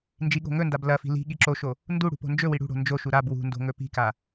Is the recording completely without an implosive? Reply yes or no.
no